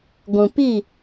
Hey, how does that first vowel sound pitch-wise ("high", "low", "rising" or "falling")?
low